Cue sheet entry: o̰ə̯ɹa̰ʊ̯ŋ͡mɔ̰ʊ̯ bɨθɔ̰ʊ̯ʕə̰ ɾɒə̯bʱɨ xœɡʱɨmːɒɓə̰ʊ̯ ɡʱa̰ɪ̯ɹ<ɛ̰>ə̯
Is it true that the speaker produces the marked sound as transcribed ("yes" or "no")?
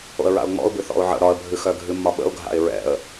yes